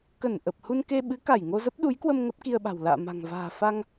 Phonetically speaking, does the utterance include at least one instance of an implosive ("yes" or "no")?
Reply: yes